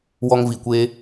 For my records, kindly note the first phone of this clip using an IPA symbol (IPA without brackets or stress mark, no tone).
w